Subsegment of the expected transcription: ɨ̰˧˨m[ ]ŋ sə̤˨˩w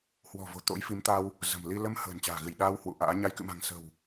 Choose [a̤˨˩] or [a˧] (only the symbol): a̤˨˩